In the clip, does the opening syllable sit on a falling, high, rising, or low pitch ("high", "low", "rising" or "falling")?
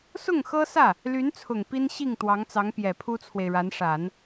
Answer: falling